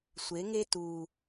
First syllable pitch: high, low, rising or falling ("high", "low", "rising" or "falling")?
rising